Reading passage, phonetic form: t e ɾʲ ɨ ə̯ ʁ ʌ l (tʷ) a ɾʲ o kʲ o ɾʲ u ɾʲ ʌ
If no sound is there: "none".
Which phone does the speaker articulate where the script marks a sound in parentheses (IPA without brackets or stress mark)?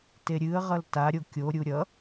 t